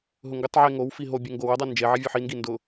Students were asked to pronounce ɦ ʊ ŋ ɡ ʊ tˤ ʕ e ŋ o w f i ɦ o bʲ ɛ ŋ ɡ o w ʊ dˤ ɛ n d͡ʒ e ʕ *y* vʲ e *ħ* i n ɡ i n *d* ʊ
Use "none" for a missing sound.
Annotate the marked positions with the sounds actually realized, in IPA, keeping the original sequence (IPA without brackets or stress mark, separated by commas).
i, ħ, d